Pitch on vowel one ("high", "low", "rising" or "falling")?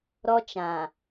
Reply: high